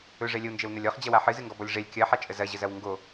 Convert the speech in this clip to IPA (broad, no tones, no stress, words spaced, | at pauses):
ɵʐɛ lʲəwnd͡ʒɛwnɐlʲ ɔχd͡ʑɐwa ħɨzɨŋɡɔbɔlʲ ʐɛlʲ kʲɐħat͡ʃʼə zɐʑəzɐw ŋɡo